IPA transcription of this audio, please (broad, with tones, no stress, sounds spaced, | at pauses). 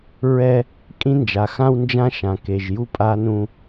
ɹ ɛ˦ | kʼ ĩ˦ n d͡ʒ a˨ x ã˦ w n d͡ʒ ã˦ ʃ ã˨ k e˨ ʒ j u˦ pʼ a˦ n ũ˦